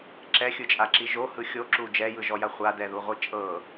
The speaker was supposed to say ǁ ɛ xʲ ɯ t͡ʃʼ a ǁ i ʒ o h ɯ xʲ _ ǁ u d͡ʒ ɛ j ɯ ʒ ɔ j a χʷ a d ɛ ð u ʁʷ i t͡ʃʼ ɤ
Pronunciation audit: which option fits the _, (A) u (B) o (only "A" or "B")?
B